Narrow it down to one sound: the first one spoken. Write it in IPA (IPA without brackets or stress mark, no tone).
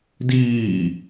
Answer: d